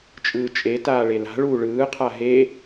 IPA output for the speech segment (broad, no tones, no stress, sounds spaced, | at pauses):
t͡ʃʼ ɯː t͡ʃʼ e t aː ɭ e l a̤ ɭ uː ɭ ɯː qʰ a ɦ e